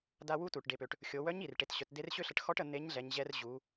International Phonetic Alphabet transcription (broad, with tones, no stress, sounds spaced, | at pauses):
d a˧ w u˧˥ t u˩ ʈ ɖ e˩˧ p ø˩ ʈ | xʲ o˩˧ w œ˧˥ ɲ i˩ r ʈ e˩˧ t ɕ œ˩˧ t d e˧˥ r ɕ ø˥ ɬ ə˧ ʈ x ɔ˧˥ ʈ ə˩˧ n̪ e˧˥ ɲ ɮ ɛ˩˧ ɲ ʑ ɛ˧ r ʑ u˩˧